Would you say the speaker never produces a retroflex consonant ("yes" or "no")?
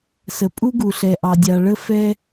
no